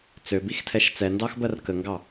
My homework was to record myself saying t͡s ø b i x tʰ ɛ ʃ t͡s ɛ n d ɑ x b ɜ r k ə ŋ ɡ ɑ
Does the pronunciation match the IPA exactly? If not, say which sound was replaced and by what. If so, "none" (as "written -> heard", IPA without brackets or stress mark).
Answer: none